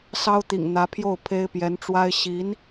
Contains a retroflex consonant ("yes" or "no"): yes